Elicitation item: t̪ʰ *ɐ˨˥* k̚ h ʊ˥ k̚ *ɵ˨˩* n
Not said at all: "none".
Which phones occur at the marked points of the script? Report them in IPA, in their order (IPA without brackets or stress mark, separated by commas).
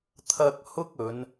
ɐ˧, ɵ˨˧